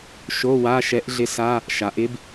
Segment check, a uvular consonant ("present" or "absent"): absent